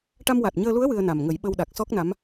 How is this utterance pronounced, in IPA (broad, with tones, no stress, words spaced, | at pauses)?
ʈa˧mwa˨˩t̚ɲəː˧lu˧˥ə̯ wɨ˧ə̯na˨˩mŋə˨˩˦j ɓə˧wɗa˨˩k̚ sɔ˦˥k̚na˧˥m